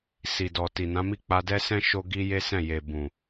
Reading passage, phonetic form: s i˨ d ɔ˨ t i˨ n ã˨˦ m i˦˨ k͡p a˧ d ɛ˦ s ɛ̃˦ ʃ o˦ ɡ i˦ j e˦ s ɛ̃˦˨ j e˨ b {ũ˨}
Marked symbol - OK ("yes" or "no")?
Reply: yes